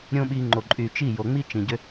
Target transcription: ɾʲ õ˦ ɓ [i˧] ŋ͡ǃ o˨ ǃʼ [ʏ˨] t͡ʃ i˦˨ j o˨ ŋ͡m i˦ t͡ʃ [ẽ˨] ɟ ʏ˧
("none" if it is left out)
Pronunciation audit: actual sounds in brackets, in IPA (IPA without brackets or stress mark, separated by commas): i˧, y˨, ĩ˨